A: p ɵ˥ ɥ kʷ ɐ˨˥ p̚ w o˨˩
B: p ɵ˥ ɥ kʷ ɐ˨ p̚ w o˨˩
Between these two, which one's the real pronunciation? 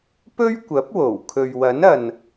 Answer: A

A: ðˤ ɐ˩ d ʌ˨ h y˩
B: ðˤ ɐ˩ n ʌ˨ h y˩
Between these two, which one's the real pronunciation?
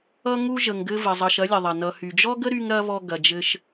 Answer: B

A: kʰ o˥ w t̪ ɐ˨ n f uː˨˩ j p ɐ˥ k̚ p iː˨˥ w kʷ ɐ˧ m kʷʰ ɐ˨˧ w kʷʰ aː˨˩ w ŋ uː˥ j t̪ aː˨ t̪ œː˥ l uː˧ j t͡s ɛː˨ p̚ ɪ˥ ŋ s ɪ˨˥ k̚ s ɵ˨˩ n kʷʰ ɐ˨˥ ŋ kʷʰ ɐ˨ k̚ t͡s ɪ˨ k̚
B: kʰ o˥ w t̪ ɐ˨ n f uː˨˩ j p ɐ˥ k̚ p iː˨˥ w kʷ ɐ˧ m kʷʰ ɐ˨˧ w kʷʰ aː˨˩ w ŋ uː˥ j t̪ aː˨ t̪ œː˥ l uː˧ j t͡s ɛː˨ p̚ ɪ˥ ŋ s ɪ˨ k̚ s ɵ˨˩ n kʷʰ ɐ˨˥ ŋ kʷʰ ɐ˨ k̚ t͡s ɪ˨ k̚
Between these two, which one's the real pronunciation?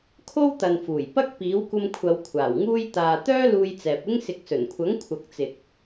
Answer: B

